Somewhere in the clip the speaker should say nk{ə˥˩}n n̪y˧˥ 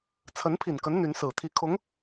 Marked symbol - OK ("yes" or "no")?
no